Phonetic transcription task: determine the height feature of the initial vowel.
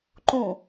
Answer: high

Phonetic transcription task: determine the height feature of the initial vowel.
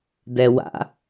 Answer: mid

